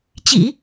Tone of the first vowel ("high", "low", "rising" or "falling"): low